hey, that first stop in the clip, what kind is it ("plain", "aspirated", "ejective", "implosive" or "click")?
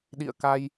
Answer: implosive